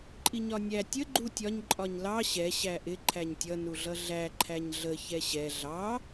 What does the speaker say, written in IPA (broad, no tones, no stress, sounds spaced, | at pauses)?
ǃʼ i ɲ ɒ nʲ æ tʲ ə ɡ͡ǃ u tʲ ɒ ɲ ǃʼ ɒ ɲ l ɑ ɕ ɛ ɕ æ ʔ ɪ ǃʰ æ ɲ tʲ ʌ n u ɮ ʌ ɮ æ ǃʰ æ ɲ ɮ ə ç ɛ ɕ ɛ ɮ ɑ